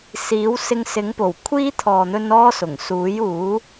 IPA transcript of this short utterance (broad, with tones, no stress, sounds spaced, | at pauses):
s iː˨˥ w s ɪ˧ ŋ s ɪ˨˥ ŋ p o˨˩ w kʷʰ iː˥ t̪ʰ ɔː˨ n̪ ɵ˧ n ɔː˥ s ʊ˨˩ ŋ s uː˨˥ j uː˨˥